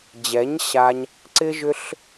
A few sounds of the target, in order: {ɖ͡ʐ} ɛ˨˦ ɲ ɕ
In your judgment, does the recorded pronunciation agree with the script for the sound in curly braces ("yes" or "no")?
no